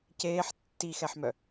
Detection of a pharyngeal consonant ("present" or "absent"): present